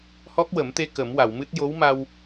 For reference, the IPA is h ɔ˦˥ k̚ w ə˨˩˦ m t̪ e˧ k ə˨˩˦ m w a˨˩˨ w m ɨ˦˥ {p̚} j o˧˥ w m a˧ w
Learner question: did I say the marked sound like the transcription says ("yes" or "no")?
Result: no